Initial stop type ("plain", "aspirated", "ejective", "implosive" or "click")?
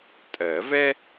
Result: ejective